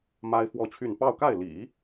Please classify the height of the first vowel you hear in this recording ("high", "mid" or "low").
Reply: low